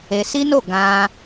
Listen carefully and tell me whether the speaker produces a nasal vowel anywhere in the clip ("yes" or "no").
yes